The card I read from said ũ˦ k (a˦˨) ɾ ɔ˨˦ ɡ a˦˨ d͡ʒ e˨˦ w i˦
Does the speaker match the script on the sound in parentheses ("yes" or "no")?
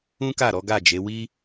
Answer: yes